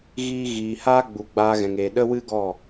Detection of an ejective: absent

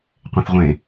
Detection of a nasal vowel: present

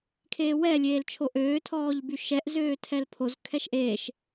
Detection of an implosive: absent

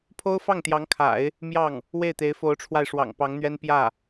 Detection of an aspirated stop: present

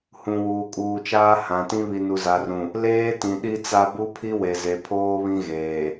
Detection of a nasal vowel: present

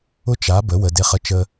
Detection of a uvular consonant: present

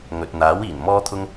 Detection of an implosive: absent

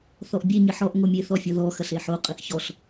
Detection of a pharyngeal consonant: present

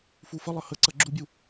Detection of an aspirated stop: absent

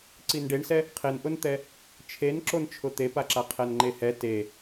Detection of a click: present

